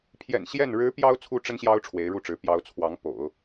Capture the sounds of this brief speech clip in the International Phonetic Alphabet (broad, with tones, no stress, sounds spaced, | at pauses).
pʰ j ɛ̰˨˩ n ɕ j ɛ˥˩ n ɻ ɻ̩˧˥ p j ɑ˥ ʊ̯ t͡sʰ u˥ ʈ͡ʂ ə˥ n ɕ j ɑ˥ ʊ̯ ʈ͡ʂʰ w e˧˥ ɪ̯ ɻ u˥˩ ʈ͡ʂ ɻ̩˧˥ p j ɑ˧˥ ʊ̯ t͡sʰ w ɑ˧˥ ŋ p o̰˨˩˦ ʊ̯